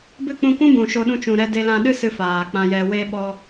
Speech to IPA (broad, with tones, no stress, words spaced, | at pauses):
bɨ˦˨k͡pũ˧kʷũ˦bũ˨ ʃo˧ɗũ˧t͡ʃũ˨ɾɛ˧ de˧lã˧ɗɨ˦ sɨ˧ faː˨k͡pã˧jɛ˧ we˧ ɓɔ˧